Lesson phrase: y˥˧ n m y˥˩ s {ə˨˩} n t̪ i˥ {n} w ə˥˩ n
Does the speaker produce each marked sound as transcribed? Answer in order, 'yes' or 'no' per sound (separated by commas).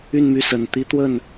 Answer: yes, no